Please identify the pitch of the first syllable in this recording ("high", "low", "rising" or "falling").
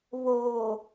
low